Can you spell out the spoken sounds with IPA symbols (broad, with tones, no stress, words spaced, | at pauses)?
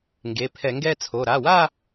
ŋɡe˩˧˩pʰɛ˧˩˧ŋɡɛ˥˧t͡sʰo˩˧˩ ɾa˩˧˩wa˥˧